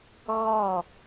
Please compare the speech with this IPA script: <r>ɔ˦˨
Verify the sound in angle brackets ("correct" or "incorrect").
incorrect